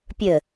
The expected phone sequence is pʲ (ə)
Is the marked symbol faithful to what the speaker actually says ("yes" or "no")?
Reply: yes